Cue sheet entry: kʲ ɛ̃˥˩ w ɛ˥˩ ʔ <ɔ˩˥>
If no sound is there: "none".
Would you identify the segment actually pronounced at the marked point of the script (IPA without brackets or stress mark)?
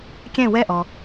ɔ˩